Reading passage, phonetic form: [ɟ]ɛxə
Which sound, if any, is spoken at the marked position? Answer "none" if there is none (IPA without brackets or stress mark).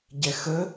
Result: ɟ